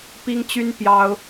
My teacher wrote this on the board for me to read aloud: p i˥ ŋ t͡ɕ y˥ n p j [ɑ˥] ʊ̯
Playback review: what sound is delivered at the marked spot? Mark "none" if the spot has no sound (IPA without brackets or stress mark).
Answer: ɑ˥